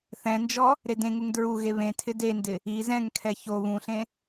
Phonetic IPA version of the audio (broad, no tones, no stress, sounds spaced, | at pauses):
θ ɛ̃ n d͡ʒ ɔ | ɾ e d ẽ ŋ u ŋ d ɹ u ɣ e β ẽ tʰ ɪ d e n d ɪ | i z ɛ̃ ŋ kʰ ɛ ç o β ũ ɬ ẽ